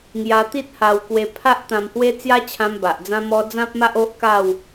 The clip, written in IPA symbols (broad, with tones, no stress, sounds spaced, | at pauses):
ŋ j a˧ t̪ i˦ t̚ h a˧ w k w e˧ pʰ a˦ ʔ t̪ ã˧ m h w e˦ t͡s j a˦ t͡ɕʰ ã˧ m b a˨ ʔ d͡z ã˦ m ɔ˦ d͡z ã˦ p̚ m a˦ ʔ o˦ ʔ k a˥˧ w